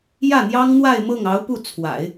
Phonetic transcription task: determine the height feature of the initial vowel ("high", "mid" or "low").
low